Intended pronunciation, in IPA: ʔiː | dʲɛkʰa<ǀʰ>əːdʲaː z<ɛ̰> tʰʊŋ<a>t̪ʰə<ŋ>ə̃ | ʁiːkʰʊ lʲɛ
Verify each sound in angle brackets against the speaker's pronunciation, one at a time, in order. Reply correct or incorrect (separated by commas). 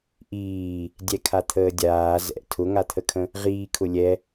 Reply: incorrect, correct, correct, incorrect